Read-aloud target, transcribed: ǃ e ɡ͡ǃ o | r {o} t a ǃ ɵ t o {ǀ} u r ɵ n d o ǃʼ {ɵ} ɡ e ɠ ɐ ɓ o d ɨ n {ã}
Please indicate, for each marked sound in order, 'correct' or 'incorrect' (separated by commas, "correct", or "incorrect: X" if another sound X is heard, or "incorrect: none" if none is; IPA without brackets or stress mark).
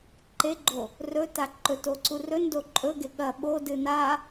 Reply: incorrect: ɵ, correct, correct, incorrect: a